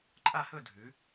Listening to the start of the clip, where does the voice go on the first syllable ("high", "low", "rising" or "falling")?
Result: falling